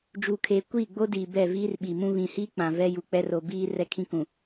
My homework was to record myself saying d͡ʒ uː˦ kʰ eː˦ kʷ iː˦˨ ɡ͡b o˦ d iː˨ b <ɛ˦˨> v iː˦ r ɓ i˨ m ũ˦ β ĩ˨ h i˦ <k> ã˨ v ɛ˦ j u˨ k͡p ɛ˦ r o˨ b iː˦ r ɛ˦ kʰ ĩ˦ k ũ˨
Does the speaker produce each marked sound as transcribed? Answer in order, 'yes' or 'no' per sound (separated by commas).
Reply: yes, no